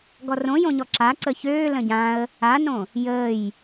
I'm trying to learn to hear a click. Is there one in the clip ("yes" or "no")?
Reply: yes